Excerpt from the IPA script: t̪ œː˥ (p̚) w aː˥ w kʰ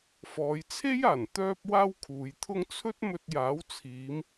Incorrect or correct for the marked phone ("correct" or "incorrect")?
correct